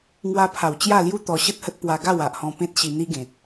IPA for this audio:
ŋ w a˧ pʰ a˨˩ w t͡ɕ j a˥˧ l j u˦ t̪ ɔ˧ ɕ ə˦ t̚ h ə˦ t̚ p w a˧ ɡ a˥˧ w a˨ ʔ h ɔ̃˧ p ẽ˦ t̚ ɕ i˧ n̪ i˦ ɡ ẽ˨ t̚

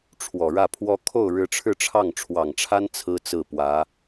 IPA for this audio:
ʈ͡ʂʰ w ɔ˨˩ ɻ ä˥˩ pʰ w ɔ˥ kʰ o˥˩ ʊ̯ ɻ ɻ̩˧˥ ʈ͡ʂʰ ɻ̩˥˧ ʈ͡ʂʰ ɑ˥˩ ŋ ʈ͡ʂʰ w ɑ˨˩ ŋ ʈ͡ʂʰ a˥ n t͡sʰ ɹ̩˥ t͡s ɹ̩˥˩ p w ä˧˥

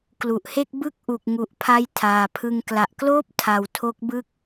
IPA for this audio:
k l u˨˩ ʔ h e˥˩ k̚ b ɯ˥˩ k̚ ʔ u˨˩ k̚ ŋ u˨˩ ʔ pʰ a˧ j tʰ aː˨˩ pʰ ɯ˧ ŋ k l a˨˩ ʔ k l oː˥˩ p̚ tʰ a˩˦ w tʰ o˦˥ k̚ b ɯ˥˩ k̚

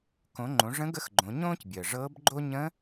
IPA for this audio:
k õ˩˧ ŋ͡ǃ õ˩˧ ʐ ə̃˧˥ ɡ ə˧˥ x ɡ͡ǃ õ˩˧ ɲ õː˥ c bʲ əː˩ ʐ ɤː˧˥ b ɡ͡ǃ o˥ ɲ ə̃˧˥

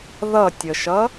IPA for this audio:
ð ʌ tʲ ə ʃ ʌ

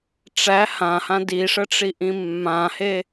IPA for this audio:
ʈ͡ʂ æ h ã h ã d i ʂ ə ʈ͡ʂ i ʔ ĩ mː ã h e

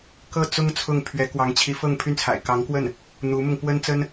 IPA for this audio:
k ɤ˥˩ t͡s ʊ˥ ŋ t͡sʰ ʊ˥˩ ŋ pʰ ɥ ɛ˧˥ k w ɑ˧˥ ŋ t͡ɕʰ i˧˥ f ɤ˥˧ ŋ pʰ y˥˩ n t͡sʰ a̰˨˩ ɪ̯ k ɑ˧˥ ŋ k w ə˥˩ n | n̪ u˧˥ m ʊ˧ ŋ p w ə˥ n t͡s ə˥ n

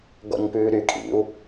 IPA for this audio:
ɡ ɔ̰ ɲ p ʉː ɾ y kʼ ḭ u̯

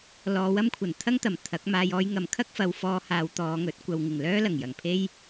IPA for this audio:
l ɔː˨˧ w ɐ˥ m kʷʰ ɐ˨˩ n t̪ʰ ɐ˥ ŋ t̪ ɐ˨˩ m t̪ʰ ɐ˨˥ k̚ m aː˧ j ɔː˧ j ŋ ɐ˨ m kʰ ɐ˥ k̚ f ɐ˨˧ w f ɔː˧ h aː˨˧ w t̪ ɔː˨˧ ŋ ɵ˨˥ t̚ kʷ ɐ˨ w ŋ ɪ˨˩ ŋ l œː˥ l ɐ˨˩ ŋ j ɐ˨˩ ŋ pʰ e˥ j

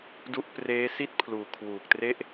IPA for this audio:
d u˦˥ ʔ p r eː˦˥ s i˥˩ t̚ pʰ l uː˨˩ kʰ w uː˨˩ k̚ t r e˥˩ ʔ

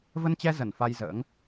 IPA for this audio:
v ə˧ n t͡ɕ ɛ˧ z ə˧˩ n f a˧ j z ə̰ː˧˥ ŋ

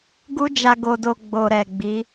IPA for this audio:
ɡ u˦ d͡ʒ a˧ ɡ o˧ d o˧ ɡ͡b o˨ ɾ ɛ˨ ɡ͡b i˨˦

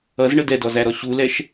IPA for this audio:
ʌ z ɳ ə d ɛ d ɔ z æ ɾ ɔ ɕ u l ɛ ʃ

